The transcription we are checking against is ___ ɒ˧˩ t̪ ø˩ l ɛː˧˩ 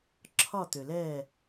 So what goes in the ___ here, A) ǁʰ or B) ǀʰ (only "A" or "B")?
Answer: A